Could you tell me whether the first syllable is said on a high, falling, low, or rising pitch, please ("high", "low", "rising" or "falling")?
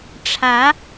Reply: rising